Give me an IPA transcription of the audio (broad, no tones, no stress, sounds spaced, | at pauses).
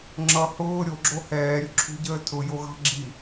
ŋ͡ǁ ʌ h ʊː ɾʲ o ɡ͡ǁ o h ɛː ɾʲ ʊ ǁʰ ṳ ɟ əː tʰ ʊ j o ɣ ɑ̤ ɡ͡ǁ i